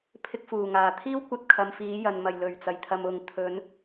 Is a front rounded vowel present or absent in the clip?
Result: absent